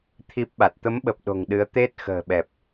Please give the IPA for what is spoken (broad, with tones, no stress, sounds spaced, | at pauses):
t̪ʰ i˦˥ p̚ ɓ a˨˩ t̚ t̪ ə˨˦ m ɓ ə˨˩ p̚ ɗ o̤˨˩ ŋ ɗ ɨ˨˦ ə̯ t̪ e˦˥ t̚ x ə̤ː˨˩ ɓ ɛ˨˩ p̚